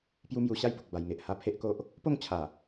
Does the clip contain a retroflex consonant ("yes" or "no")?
no